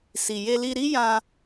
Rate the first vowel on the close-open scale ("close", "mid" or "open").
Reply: close